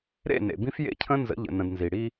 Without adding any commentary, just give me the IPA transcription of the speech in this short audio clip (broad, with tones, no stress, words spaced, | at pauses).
ɾḛ˦˨nḛ˨bĩ˦f jḛ˦cʰə̃˦nzə̰˨˦ʎə̰˨ nə̃˨dnzi˨ ɽi˦